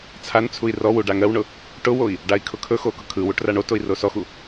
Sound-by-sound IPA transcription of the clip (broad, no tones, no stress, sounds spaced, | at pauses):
t͡sʰ a n t͡sʰ u i̯ r ɔ w u ɖ a ŋ ɜ w ɳ ʊ | ʈ ʊ w o i̯ | ɖ a i̯ kʰ ʊ kʰ ɵ x o k ʊ kʰ ɯ w u ʈ r a ɳ o t o i̯ r o s ɔ x u